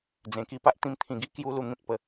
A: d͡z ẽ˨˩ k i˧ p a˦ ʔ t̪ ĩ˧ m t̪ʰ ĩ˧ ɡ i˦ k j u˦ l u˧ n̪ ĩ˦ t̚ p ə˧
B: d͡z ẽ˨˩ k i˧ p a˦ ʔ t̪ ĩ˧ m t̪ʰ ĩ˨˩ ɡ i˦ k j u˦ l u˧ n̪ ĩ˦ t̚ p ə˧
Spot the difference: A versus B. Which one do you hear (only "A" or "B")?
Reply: B